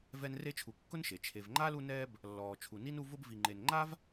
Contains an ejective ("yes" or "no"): no